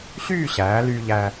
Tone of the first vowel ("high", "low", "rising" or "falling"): falling